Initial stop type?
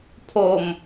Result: aspirated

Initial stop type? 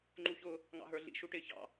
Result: click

